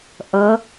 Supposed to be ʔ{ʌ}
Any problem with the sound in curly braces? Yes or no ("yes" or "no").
no